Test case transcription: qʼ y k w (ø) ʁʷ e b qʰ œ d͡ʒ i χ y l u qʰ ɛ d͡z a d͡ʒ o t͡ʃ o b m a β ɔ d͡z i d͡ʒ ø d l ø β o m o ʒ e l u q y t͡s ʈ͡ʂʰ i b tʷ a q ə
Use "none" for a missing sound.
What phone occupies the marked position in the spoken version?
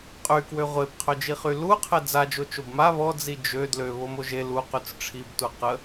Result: ø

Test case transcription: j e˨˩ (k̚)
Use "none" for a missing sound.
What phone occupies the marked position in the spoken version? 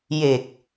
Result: k̚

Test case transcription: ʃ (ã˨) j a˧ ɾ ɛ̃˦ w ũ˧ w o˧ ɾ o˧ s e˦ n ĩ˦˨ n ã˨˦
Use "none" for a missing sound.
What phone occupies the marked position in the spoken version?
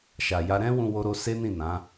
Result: a˨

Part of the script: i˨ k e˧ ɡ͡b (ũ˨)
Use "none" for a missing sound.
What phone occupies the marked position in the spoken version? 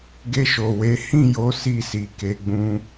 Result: ũ˦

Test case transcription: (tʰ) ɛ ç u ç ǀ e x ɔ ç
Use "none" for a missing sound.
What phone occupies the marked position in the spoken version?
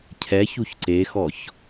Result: cʰ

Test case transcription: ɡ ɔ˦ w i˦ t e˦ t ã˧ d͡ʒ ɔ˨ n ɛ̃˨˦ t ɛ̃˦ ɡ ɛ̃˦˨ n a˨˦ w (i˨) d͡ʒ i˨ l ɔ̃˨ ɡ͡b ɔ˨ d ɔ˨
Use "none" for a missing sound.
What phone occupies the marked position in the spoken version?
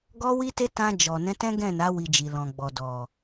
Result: i˧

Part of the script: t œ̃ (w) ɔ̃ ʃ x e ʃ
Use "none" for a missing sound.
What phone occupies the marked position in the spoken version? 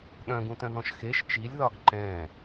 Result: ð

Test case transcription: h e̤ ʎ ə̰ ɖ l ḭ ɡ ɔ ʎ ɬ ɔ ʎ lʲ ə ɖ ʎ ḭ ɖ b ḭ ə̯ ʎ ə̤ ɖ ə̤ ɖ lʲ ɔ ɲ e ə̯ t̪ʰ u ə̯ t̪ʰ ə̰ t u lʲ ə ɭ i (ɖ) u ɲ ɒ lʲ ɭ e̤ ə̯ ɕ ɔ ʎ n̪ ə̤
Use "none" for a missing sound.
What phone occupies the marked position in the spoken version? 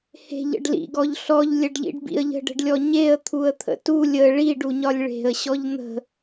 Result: ɖ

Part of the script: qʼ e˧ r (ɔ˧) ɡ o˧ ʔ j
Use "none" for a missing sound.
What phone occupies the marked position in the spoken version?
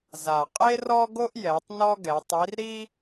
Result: ɔ˧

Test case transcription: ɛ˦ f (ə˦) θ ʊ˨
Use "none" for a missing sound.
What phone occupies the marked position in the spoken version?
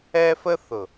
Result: ə˦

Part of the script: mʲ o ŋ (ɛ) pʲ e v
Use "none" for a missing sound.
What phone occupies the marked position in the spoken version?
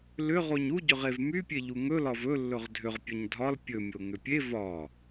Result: ʏ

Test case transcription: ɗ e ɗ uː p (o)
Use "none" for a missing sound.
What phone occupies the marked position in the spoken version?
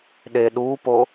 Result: o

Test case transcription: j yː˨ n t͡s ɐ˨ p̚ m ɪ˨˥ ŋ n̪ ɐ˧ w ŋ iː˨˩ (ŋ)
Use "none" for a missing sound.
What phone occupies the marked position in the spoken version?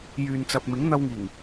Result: ŋ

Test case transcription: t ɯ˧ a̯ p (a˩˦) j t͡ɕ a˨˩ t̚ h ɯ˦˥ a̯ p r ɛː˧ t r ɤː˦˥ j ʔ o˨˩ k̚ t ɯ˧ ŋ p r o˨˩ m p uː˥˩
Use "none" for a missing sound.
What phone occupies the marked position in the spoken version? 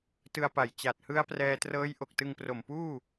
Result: a˨˩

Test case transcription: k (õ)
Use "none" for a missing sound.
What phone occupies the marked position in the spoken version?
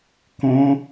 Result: õ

